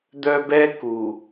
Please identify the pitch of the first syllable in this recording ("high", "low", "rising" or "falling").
high